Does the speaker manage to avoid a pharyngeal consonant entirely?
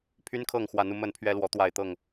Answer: yes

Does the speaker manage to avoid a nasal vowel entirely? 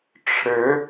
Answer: yes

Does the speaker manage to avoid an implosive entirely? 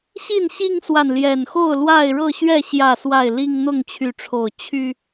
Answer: yes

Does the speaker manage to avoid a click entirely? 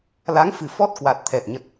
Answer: yes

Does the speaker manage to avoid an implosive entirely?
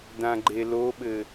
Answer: no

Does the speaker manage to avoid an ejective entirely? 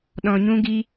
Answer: yes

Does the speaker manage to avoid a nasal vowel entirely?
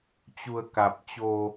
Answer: yes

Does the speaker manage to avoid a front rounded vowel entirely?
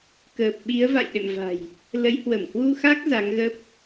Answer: yes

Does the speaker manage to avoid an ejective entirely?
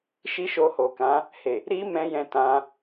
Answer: yes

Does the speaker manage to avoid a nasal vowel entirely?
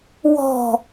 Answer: yes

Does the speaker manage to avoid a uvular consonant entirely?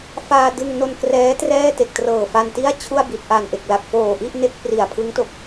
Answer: yes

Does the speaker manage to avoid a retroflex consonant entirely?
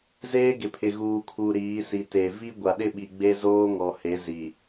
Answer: yes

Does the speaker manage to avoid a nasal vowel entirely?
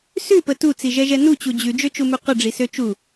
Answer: yes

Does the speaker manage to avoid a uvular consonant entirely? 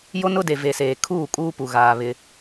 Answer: yes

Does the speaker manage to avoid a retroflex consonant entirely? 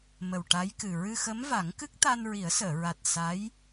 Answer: no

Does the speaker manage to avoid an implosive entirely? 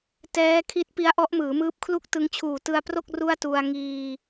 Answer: yes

